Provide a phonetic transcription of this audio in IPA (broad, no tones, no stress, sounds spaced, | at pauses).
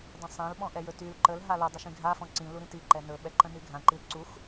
dˤ ə̃ sˤ ã l ɓ ɔ̃ ʔ ɛ j ɵ t y l ǃ ə l ɦ a l u dˤ ə ʃ ĩ ɡʱ a f ɔ̃ ǀ ĩ l u ɾ ĩ t i ǃ ɛ n ɵ ɓ ɛ ǃ ə̃ n y ɡʱ ã ǃ i l ǀ u x